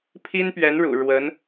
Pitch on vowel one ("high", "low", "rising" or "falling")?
high